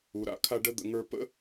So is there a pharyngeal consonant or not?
no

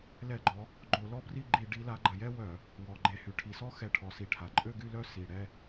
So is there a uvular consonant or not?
no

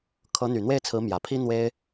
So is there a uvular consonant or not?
no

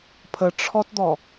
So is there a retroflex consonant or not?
yes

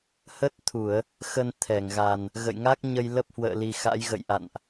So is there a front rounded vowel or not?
no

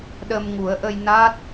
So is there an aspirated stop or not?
no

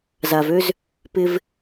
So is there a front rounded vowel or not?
yes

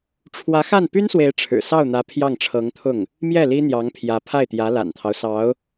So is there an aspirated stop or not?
yes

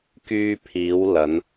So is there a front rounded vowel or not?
yes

